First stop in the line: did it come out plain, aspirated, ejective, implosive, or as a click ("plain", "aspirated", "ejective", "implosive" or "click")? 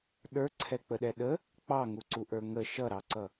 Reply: implosive